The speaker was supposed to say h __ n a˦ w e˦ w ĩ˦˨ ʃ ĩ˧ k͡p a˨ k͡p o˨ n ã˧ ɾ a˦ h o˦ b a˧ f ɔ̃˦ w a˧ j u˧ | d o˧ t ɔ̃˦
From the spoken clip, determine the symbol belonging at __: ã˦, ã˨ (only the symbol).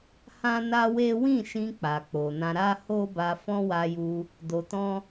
ã˦